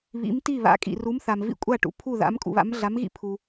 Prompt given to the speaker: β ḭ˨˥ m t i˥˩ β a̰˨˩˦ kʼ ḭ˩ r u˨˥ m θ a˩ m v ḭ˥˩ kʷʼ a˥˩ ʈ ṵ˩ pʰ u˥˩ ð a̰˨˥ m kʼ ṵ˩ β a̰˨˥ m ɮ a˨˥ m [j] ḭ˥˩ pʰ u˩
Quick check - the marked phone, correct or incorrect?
incorrect